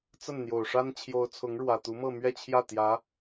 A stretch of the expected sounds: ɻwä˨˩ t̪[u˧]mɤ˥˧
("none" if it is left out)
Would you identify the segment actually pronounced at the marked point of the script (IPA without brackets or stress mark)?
u˧˥